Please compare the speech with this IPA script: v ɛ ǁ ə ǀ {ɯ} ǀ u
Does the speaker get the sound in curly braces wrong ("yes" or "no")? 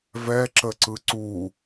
no